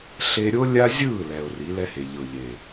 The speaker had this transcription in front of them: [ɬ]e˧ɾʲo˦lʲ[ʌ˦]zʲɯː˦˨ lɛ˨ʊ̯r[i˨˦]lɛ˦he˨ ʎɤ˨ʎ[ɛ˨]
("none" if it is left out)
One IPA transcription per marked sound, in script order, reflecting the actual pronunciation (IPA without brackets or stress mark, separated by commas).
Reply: ɬ, a˦, i˨˦, e˨